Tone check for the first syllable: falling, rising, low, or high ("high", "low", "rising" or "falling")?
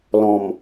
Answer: low